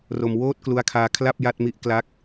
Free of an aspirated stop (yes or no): no